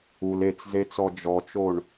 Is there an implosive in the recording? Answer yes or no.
no